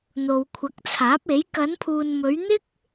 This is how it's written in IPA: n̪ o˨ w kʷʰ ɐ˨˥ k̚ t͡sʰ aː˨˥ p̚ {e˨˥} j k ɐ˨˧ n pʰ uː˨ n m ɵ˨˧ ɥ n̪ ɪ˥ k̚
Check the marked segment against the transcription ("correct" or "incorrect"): correct